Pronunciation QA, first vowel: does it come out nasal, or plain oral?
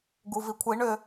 oral